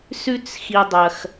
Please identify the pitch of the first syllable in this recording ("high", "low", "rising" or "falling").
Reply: high